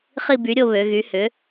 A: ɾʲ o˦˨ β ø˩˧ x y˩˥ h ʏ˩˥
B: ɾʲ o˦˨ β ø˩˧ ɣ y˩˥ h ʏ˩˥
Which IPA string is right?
B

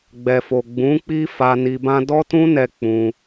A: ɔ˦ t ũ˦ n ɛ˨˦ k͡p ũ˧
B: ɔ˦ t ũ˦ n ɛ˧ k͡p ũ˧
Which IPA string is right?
B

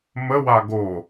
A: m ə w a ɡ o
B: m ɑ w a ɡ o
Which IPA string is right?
A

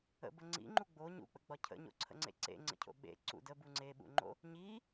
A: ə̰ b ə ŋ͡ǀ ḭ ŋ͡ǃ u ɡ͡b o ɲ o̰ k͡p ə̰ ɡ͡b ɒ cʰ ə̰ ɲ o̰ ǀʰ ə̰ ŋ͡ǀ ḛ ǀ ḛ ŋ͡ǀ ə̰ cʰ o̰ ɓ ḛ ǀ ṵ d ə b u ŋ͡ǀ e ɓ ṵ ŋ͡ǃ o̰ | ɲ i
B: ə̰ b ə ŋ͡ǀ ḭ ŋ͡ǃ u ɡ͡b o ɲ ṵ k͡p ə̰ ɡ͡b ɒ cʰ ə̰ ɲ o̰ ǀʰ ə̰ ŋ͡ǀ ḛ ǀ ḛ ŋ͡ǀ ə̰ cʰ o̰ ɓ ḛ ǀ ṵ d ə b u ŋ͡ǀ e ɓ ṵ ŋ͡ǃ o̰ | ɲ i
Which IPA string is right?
B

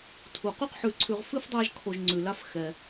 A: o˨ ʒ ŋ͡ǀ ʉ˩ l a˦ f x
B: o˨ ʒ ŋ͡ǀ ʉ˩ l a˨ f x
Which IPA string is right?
A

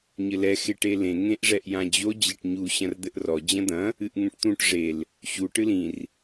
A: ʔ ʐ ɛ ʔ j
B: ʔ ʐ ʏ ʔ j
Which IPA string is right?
A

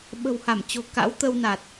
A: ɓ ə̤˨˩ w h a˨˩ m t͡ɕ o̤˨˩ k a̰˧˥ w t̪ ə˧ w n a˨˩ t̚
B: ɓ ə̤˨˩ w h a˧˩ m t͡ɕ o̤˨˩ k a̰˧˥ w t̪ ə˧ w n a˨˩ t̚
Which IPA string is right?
B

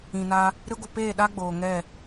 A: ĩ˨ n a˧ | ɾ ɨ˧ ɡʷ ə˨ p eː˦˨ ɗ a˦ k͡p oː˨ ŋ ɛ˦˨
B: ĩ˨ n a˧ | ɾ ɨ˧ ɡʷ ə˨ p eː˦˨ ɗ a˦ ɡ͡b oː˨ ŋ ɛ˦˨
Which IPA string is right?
B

